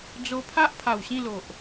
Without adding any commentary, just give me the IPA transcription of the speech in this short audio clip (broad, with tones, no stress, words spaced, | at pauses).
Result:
d͡zo˧pʰa˦ʔpʰa˨˩w ɕĩ˥˧lo˨ʔ